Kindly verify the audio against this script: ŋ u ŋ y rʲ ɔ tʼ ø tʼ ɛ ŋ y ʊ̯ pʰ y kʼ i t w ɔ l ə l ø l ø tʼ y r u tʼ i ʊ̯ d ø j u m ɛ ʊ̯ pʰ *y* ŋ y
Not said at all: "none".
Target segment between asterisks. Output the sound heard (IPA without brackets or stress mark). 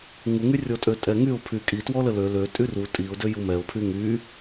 y